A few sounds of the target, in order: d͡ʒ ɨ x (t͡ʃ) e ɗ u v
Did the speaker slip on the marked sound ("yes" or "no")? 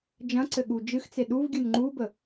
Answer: yes